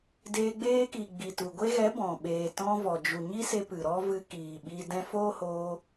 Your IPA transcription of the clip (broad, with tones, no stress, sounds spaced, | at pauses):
d eː˧ ɡ͡b eː˦ k i˨ ɡ͡b i˨ t u˨ ɡʷ e˧ ɣ ɛ˨˦ b ɔ̃˨ ɓ eː˨ t ɔ̃˧ v ɔ˨ d͡ʒ u˨ ɲ i˦ s e˧ p ɨ˨ ɾ ɔ˦ v ɨ˧ k iː˨ ɓ i˧ d ɛ̃˧ f oː˦ h oː˧